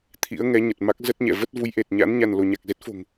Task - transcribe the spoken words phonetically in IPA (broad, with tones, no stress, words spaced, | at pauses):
t̪ʰḭ˧˥ə̯ ŋɛ˨˦ɲə˨˩t̚ma˦˥k̚ zə˦˥t̚ɲɛ̰˧˨ və˦˥t̚vu˨˦jʔe˨˩t̚ ɲa̰˧˥n ɲa˧nlo˧ ɲa˨˩k̚ze˦˥t̚fo̤˨˩ŋ